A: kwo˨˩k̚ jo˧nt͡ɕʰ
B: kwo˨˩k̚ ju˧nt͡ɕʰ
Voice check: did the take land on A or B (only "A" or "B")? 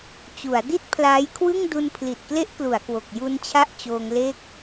B